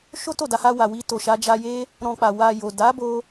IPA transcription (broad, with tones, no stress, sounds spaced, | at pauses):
ʃ o˦ t o˦˨ d a˧ h a˧ w a˨ w i˧ t o˨ ʃ a˧ d͡ʒ a˧ j e˦ | ɾ ɔ̃˧ k͡p a˨ w a˨ j o˨ d a˨˦ b o˧